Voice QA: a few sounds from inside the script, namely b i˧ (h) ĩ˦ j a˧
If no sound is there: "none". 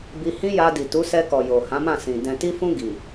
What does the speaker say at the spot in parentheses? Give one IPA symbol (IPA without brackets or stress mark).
h